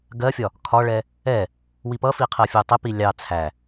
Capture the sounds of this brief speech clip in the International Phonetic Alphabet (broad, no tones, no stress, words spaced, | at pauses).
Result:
ɡɜfʲɒ | kʰɒɭɛ | ɛ | wipʌfi qʰɜfʲutˤɪpi lʲɑ t͡sʰæ